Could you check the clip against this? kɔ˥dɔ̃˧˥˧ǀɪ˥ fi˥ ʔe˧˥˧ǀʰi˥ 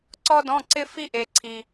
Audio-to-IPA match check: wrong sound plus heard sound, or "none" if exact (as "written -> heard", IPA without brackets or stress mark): k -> ǀ